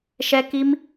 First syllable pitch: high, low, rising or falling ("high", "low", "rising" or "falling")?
high